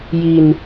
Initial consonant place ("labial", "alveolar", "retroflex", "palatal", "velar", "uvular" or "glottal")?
palatal